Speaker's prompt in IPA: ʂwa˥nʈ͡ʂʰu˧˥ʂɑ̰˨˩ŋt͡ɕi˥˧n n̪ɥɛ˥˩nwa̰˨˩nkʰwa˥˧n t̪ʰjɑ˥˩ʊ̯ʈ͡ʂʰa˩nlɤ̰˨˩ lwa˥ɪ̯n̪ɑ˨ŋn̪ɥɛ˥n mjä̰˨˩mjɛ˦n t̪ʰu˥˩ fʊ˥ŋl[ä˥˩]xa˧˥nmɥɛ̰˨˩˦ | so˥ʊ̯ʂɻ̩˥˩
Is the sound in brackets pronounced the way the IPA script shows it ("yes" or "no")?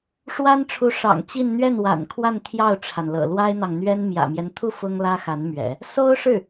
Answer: no